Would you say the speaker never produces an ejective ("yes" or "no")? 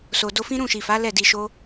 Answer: yes